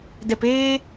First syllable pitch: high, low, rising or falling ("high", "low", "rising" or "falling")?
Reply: low